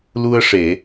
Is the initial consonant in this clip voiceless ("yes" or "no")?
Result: no